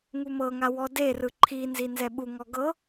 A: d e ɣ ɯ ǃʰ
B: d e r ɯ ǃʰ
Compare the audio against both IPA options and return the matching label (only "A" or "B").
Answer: B